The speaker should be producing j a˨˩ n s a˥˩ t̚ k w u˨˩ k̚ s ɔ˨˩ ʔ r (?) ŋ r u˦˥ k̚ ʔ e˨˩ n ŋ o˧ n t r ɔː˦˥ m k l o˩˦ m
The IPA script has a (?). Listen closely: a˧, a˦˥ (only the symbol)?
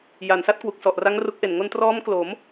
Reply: a˦˥